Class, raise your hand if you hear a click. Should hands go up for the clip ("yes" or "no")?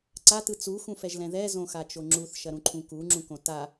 yes